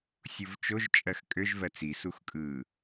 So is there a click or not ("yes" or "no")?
no